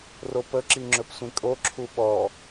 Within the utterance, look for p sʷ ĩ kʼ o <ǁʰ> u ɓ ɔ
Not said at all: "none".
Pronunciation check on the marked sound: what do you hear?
ǁʰ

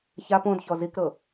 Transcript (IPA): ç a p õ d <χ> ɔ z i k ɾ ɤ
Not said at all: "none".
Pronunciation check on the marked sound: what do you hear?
ç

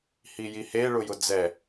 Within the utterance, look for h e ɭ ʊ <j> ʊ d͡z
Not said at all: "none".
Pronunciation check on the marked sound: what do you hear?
j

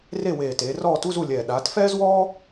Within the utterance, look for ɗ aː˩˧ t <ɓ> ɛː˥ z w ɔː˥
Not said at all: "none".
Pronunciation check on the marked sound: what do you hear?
f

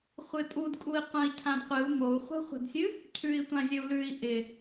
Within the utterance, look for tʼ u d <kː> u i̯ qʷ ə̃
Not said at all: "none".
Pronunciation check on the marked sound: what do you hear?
kʼ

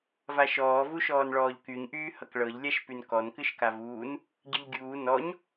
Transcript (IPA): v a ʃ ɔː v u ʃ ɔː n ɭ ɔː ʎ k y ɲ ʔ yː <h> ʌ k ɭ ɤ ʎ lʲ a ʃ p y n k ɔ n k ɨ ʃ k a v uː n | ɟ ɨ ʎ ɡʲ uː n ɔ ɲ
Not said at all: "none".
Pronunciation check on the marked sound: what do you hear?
h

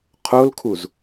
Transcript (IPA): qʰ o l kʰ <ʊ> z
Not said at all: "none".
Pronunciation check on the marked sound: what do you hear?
u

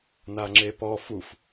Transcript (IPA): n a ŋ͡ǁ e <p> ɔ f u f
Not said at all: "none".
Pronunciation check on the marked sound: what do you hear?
p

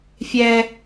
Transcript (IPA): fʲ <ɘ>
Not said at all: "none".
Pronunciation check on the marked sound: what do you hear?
ɛ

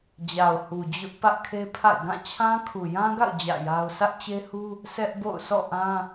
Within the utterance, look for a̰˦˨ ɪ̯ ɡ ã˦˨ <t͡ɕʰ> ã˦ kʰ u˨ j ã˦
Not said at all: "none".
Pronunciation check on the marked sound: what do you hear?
t͡ɕʰ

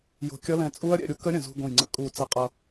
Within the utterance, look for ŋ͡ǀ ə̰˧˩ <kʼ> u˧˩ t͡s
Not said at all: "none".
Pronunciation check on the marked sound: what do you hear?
kʼ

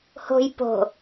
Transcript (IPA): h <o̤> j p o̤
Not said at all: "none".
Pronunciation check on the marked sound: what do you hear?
o̤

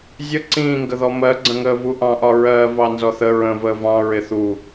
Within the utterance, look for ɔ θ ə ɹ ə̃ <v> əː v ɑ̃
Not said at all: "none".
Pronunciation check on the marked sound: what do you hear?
v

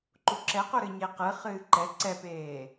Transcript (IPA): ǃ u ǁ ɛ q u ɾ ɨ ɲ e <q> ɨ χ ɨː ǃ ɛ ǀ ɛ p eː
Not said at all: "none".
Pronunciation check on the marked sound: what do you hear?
q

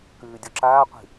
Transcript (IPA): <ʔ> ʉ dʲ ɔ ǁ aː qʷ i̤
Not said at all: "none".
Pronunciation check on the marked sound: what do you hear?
k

